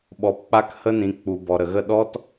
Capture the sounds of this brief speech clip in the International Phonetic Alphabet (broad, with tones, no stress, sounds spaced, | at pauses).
ɓ ɔ˨ p k͡p a˦ k h ə˦ n ĩ˨ k͡p u˨ b ɔ˨ ɾ ə˨ ɣ ə˦˨ ɗ ɔ˦ t